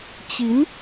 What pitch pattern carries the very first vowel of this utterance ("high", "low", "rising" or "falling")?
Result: rising